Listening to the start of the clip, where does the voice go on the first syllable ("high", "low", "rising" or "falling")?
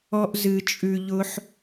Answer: high